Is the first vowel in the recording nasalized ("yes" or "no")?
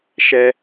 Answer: no